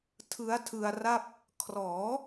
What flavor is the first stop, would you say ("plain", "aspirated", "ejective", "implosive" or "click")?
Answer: aspirated